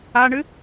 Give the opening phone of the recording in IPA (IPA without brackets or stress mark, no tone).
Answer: a